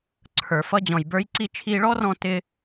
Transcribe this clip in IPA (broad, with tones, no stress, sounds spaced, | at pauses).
ǀʰ ə˞˩ f ʌ˧ d͡ʑ ɔ̃˩ j b ə˞˧ j ǀ i˧ t͡ʃʰ iː˧ ɭ ɔ˥ r ɔ̃˧ t ɪ˧